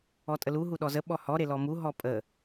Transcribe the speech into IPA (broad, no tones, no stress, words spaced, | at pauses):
ɔtʼəlu ɦuɗɔzə ɓɔhɔ ɾelɔmu ɦɔpʼə